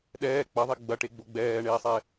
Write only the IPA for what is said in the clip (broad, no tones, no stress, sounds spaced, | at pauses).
ɗ ɛː k͡p ɐ ðˤ e ɡ͡b ɐ ʈ e ɡ͡b o ɡ͡b ɛː ɳ eː sˤ ɛ